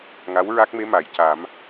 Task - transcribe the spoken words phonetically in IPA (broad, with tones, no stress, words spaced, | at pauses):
ŋa˧˥w ɹa˦˥k̚me˧˥ ma˨˩˨jca˨˩˦m